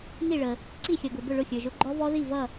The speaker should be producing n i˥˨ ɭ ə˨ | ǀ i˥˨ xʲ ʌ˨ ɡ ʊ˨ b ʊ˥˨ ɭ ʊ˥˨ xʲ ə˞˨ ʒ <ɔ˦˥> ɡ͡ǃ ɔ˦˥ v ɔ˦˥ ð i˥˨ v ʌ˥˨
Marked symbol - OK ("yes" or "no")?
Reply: no